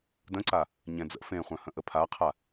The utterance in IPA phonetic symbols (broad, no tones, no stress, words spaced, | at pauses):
də̃ǀa | ɲɛ̃d͡zə̰ fẽχʷœ̃hə̃ ʔəpʰaqʰa